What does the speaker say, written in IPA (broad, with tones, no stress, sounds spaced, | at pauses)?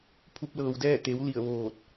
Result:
pʰ u˧ p̚ l ɤː˩ w d ɛː˥˨ t̪ e˩˧ w l i˧˩ ə̯ ʋ oː˧˩ t̚